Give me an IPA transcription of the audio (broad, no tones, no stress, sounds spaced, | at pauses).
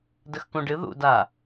d ə x k ũ ɖ ɨ ð ṵ d a